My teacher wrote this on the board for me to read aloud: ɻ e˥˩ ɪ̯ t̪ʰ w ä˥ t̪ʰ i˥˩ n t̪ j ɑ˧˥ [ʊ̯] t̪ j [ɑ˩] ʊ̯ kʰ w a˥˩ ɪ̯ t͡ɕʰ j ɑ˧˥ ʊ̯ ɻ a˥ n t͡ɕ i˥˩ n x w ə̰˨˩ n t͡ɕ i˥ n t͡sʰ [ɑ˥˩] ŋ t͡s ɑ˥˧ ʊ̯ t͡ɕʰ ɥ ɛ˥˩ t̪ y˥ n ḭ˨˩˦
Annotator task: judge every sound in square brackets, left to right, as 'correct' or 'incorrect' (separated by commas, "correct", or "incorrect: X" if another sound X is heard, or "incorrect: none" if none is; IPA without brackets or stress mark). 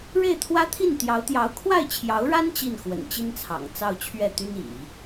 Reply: correct, incorrect: ɑ˧˥, incorrect: ɑ̰˨˩